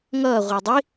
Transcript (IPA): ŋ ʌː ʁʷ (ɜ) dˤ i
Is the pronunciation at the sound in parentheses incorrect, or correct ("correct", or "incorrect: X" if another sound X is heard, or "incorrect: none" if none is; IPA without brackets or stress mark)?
incorrect: ɛ